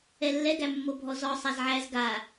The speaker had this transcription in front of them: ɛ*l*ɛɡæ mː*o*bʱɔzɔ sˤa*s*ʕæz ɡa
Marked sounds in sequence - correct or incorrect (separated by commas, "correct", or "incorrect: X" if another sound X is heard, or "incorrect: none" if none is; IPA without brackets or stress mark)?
incorrect: lː, correct, incorrect: z